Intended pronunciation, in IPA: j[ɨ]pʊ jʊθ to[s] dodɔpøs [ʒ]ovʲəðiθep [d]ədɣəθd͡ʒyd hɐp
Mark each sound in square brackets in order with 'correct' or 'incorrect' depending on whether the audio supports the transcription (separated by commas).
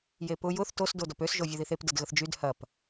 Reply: incorrect, correct, correct, correct